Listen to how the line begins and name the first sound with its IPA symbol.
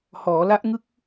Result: h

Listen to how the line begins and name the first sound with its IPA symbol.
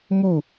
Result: m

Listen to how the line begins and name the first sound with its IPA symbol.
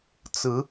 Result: t͡s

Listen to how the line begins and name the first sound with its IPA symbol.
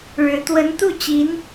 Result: ɻ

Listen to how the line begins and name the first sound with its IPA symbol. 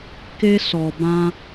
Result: k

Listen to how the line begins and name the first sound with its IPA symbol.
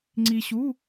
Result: ŋ͡ǀ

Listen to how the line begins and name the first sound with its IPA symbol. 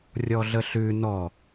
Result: rʲ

